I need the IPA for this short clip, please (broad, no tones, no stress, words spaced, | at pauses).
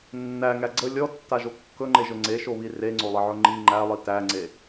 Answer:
nːæŋæ ɡ͡ǀə lʲɔtːaʒo kːɵŋ͡ǃeʒɵ ŋ͡ǀeʃoβi reŋ͡ǀolˠəʕɵ ŋ͡ǃi ŋ͡ǃælˠi tæŋ͡ǀe